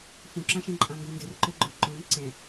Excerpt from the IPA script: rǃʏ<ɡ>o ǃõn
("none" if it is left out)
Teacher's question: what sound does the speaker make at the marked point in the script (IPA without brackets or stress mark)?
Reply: ɡ͡ǃ